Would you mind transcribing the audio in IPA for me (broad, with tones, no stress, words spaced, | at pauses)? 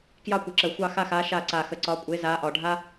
kjɑ˦˨kʷə˨˩ǁə˨˩ xʷɑ˦˨xa˦˨xa˨˦ ʃa˦˨ ǀa˨˩xə˨˩ǀɒ˨˦kʷʼe˨˦ za˨˦ʔɒ˨˩ɖʱa˥